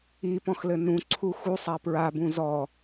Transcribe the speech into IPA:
i p ɔ̃ x l ɘ n ũ ǀʰ u x u sˤ a p ɹ a b ũ z ɔ

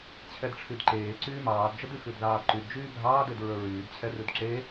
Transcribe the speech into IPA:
t͡ɕʰ ɛ d ʈ͡ʂʰ y d ǃ eː ǀ yː m ɑː d d͡ʒ ə d y x ʉ d ð ɑː d ǃ y d d͡ʒ yː bʱ ɑː d e d ɹ ə˞ ɹ yː d t͡ɕʰ ɛ r ʉ d ǁ e

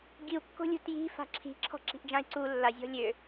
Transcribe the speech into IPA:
ɡ i u̯ kː o̤ lʲ ṳ t j i̤ f a̤ ǁʰ i̤ ǁʰ ɔ̤ ǁ i̤ ʔ d͡ʒ ã i̯ ǀ u lː a zʲ ɔ̤ lʲ ø

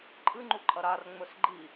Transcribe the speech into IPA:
ǃʼ ɨ ŋ͡ǃ u ǃʼ ɐ ɾ a r ŋ͡m ɵ s ɡ͡ǃ i

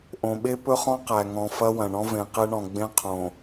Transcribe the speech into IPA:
ʔ õ˨ ɓ e˦ p ɵ˦ χ ɔ̃˦ q æ˨ ŋ ɔ̃˨ f ɐ˦ w ɐ̃˨ ɳ ɔ̃˦ v ẽ˨ q e˦ ɳ ɔ̃˨ ɡ͡b ẽ˦ qʰ õ˨

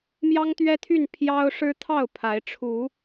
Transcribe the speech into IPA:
m j ɑ˦ ŋ t̪ ɥ ɛ˦ t̪ʰ y˥˨ n pʰ j ɑ˦ ʊ̯ ʂ ɻ̩˦ t̪ʰ ɑ˥˨ ʊ̯ pʰ a˨˦ ɪ̯ ʈ͡ʂʰ u˨˦

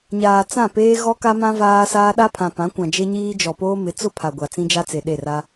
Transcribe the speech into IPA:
ɲ aː˨ t͡s ã˦˨ p eː˦ ɣ ɔ˦ k a˦ m ã˦ v aː˦ s aː˦ ɗ a˦ pʰ ã˨ p ã˨˦ kʷ ã˨ d͡ʒ e˦ ɲ iː˦ d͡ʒ ɔ˨ p oː˦ m ɪ˨˦ t͡s ʊ˦ pʰ a˨ ɡʷ a˨ t͡s ĩ˦ d͡ʒ a˦ t͡s e˨ ɗ e˦˨ r a˦

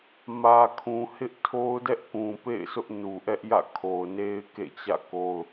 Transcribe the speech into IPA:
m ä˨ kʰ ũ˨ h ɪ˦ ʔ tʰ o˦ ʊ̯ d ɛ˦ ʔ k ũ˨ p ḛ˦˨ ɪ̯ s ʊ˦ ʔ n u˨ ʔ ɛ˦ ʔ j ä̰˦˨ kʰ o˨ ʊ̯ n e˦ ɪ̯ k ḛ˦˨ t͡ɕ ä̰˦˨ k o˦ ʊ̯

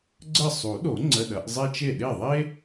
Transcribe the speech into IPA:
ɡ͡ǀ ə˥˩ sˤ u˨˩˦ ɗ o˨˩˦ ŋ͡ǀ ə˧˥˧ ɗ ɐ˨˩˦ ʔ zˤ ɛ˥ t͡ʃ e˥˩ ɗ e˥˩ ðˤ e˥

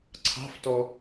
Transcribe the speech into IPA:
ǀʰ ɑ̤ f t ɔ

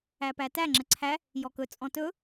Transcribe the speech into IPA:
æ p æ t æ ŋ͡ǁ ə ǀʰ æ | j ɔ k ɵ t͡sʼ ɔ̃ t ɵ

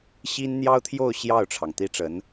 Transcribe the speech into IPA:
ɕ i˥ n n̪ j ɑ˥ ʊ̯ t̪ʰ j o˥˧ ʊ̯ ɕ j ɑ˥˩ ʊ̯ ʈ͡ʂʰ ɑ˩ ŋ t̪ i˥ ʈ͡ʂ ə˧˥ n

